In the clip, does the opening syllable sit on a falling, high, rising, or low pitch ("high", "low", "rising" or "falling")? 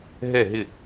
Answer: falling